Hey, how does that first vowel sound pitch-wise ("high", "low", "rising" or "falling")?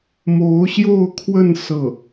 rising